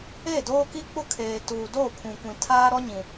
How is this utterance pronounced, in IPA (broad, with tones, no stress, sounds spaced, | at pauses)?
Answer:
e˦˨ d oː˦ k i˦ k͡p ʊ˦ kʰ eː˨ t uː˨ d o˦˨ pʰ ũ˨ kʷ ĩ˨ tʰ aː˦ ɾ ɔ˦ ɲ ĩ˨